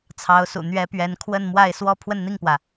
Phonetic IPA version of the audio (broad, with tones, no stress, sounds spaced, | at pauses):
t͡sʰ ɑ˧˥ ʊ̯ s ṵ˨˩ n̪ ɥ ɛ˧˥ p ɥ ɛ˧˥ n kʰ w ə˥˧ n m w a˥˧ ɪ̯ s w ɔ˥˧ pʰ w ə˥˧ n n̪ i˥˩ ŋ p w ä˩